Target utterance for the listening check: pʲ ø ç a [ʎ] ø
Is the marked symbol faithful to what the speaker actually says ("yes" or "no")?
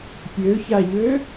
yes